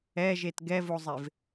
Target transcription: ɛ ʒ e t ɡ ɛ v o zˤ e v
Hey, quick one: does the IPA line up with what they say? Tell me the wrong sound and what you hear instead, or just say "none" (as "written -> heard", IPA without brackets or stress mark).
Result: none